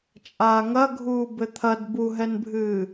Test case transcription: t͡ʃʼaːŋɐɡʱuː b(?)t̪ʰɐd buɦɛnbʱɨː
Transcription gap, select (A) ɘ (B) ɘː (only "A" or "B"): A